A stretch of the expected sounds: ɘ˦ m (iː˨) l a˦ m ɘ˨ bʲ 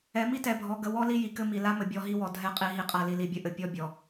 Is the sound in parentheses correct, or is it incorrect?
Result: incorrect